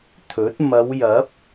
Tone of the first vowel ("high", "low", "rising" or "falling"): rising